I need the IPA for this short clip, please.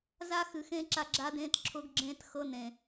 za˦xɨ˨xẽː˦ ǁa˦ɡ͡ǁa˦dẽː˦t ǁʰʊ˦ɡɡ͡ǁẽː˦txɤ˦nẽ˨

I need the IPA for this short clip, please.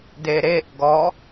deɾeʔ ɡɔ

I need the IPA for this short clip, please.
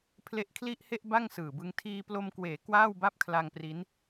pʰle˦˥ʔkʰli˥˩ʔhe˥˩ʔ ba˥˩ŋsɯː˨˩bɯ˧ŋ tʰiː˧plo˧mkweː˩˦ kwaː˥˩wba˥˩p̚kʰla˧ŋpri˦˥n

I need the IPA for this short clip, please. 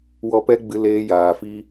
wɔ˦pɛ˦ ɡ͡bɨ˦leː˦jaː˧ fi˦

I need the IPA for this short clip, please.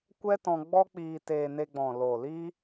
kʷɛ˦tɔ̃˧ ɡ͡bɔ˦k͡piː˧ teː˧ne˧ɡ͡bɔ̃˨ loː˨liː˦

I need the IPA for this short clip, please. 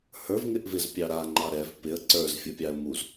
hə˞vŋɪʔvɪzpʲɑ ɾaŋ͡ǃɑ ɾɛv pɪə̯ ǀə˞zfʲə˞pʲɑə̯ muz

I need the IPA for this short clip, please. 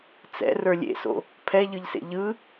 t͡sɛ̰ rə˞lʲḛso̰ | pʰɛʎɯʎsḛ ʎɯ

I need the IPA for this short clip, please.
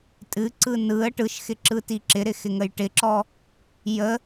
tʼɨǀɯ nɯə̯ ʈɯʃxɪǁɯti ǁɪɾɪxɪŋəj ʈɪǁɔ | jə

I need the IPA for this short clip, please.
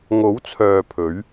ŋo˨˥wt͡sʰœː˨ pʰɵ˨˥ɥ

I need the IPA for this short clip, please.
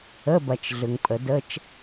ə˧˥˧bɐ˨t͡ʃ ɮʏ˨ŋpʼə˨˩˦də˧˥˧t͡ʃ

